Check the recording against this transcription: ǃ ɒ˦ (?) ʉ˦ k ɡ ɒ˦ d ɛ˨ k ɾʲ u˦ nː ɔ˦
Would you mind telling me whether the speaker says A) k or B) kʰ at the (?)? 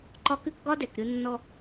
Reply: A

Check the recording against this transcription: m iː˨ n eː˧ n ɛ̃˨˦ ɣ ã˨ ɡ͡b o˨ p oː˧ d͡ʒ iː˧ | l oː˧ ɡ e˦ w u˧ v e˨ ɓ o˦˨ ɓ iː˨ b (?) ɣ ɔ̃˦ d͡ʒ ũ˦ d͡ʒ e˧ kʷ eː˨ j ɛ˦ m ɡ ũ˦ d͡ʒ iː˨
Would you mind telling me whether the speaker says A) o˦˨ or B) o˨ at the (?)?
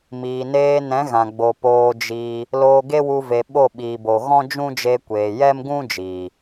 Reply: B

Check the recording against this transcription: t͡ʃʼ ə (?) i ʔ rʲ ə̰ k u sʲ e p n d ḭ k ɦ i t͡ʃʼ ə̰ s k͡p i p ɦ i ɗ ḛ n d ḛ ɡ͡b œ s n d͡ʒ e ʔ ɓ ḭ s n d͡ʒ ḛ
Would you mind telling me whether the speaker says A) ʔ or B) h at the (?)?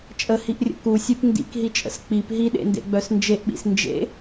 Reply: B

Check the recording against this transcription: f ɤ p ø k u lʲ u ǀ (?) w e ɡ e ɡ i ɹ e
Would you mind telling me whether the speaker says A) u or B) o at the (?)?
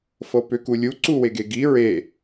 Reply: A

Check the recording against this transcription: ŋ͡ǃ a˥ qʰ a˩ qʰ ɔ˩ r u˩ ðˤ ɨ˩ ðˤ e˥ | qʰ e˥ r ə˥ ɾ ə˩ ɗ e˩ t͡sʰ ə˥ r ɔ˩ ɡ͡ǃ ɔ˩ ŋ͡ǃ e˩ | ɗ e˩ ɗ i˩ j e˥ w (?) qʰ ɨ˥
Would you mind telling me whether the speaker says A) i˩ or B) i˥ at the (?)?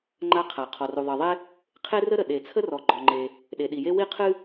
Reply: B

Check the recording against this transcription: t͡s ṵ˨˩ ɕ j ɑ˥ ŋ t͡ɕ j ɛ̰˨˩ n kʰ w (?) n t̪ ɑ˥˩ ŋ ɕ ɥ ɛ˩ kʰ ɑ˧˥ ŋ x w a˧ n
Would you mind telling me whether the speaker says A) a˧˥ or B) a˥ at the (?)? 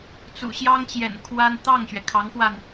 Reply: B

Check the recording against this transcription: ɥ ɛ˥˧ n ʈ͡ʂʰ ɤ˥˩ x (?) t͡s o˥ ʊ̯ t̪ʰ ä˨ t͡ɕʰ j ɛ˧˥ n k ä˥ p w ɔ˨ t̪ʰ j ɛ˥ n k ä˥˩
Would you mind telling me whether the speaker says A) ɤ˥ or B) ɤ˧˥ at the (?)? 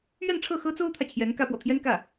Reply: A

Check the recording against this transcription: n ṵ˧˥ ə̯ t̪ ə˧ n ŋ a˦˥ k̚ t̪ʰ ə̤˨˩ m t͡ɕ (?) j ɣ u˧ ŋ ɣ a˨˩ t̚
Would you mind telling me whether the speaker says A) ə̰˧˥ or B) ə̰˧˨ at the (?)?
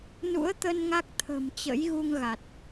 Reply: A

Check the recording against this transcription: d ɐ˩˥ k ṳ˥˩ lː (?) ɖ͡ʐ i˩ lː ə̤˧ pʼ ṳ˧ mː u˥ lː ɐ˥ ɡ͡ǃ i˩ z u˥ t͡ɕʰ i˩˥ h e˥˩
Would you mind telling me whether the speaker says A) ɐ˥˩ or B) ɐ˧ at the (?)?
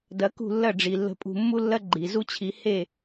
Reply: A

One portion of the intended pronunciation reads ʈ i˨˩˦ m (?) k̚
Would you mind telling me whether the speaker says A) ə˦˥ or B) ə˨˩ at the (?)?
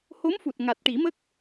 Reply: A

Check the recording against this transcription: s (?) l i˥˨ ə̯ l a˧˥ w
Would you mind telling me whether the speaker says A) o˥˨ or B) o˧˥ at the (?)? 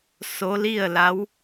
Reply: B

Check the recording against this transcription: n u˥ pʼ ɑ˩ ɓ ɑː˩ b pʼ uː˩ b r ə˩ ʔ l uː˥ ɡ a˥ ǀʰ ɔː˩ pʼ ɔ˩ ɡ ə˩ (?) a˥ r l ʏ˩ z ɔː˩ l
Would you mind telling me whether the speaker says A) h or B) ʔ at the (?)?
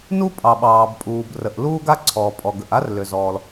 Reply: B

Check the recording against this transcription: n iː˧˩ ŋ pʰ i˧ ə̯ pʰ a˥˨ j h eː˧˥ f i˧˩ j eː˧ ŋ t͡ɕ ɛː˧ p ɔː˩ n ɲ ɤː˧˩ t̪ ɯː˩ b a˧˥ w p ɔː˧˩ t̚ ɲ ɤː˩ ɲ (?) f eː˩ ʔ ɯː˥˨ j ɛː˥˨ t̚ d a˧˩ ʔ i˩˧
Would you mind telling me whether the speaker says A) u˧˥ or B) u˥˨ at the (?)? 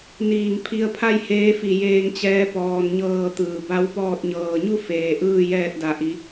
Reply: B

